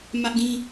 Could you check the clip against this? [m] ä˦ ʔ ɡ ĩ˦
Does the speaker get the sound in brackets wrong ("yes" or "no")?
no